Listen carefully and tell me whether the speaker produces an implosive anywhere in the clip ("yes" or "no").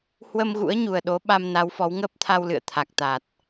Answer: yes